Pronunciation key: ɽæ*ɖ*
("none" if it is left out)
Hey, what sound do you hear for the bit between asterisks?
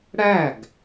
ɡ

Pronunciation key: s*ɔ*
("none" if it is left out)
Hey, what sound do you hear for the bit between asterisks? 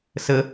ə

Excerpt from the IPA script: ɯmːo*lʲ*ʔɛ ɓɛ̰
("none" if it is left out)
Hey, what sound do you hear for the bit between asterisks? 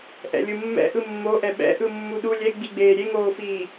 none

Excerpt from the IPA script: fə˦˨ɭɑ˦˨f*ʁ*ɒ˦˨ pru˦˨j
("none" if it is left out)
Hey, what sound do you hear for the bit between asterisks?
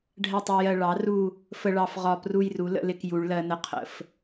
ʁ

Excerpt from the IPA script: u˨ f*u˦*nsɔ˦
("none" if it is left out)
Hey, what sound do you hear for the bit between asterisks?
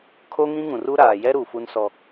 u˦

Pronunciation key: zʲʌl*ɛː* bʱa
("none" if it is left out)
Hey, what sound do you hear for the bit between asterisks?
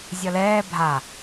ɛː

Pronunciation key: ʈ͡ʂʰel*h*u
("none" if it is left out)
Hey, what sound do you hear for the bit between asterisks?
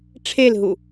ɦ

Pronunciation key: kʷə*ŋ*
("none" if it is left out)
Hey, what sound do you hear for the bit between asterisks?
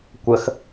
x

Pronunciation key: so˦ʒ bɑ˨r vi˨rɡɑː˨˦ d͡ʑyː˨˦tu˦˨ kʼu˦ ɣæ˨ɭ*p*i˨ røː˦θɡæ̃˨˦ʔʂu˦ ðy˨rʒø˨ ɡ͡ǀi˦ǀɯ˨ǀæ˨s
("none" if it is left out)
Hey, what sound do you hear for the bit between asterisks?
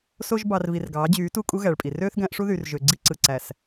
pʼ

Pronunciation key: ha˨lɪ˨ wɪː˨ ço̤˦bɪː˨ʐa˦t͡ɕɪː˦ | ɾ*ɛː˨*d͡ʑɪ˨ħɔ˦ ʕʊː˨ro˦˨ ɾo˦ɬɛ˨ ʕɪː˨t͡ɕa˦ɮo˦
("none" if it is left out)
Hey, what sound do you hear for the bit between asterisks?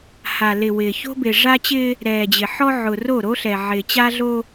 ɛː˨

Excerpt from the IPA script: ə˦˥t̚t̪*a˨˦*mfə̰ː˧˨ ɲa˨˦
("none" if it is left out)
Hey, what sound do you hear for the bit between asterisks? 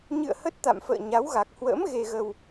a̰˧˨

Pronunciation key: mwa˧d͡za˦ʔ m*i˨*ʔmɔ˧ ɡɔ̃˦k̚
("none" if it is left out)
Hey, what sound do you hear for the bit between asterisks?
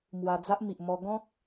i˨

